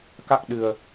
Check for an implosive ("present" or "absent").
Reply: present